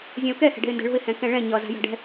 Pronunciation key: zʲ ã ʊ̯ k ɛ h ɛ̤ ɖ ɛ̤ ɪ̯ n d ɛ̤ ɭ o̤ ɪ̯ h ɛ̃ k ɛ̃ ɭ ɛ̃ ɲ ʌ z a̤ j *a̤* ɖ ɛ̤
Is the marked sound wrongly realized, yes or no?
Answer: no